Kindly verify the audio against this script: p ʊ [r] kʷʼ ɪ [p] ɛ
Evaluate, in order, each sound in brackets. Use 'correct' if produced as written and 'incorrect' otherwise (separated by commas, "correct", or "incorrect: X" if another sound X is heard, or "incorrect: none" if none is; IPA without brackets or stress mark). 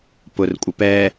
correct, correct